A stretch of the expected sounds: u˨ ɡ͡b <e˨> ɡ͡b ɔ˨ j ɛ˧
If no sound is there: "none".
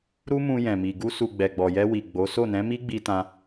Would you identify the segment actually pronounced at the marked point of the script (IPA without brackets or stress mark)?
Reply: ɛ˨